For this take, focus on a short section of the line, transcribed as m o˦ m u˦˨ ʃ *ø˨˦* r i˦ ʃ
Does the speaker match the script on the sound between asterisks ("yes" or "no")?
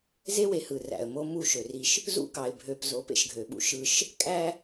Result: no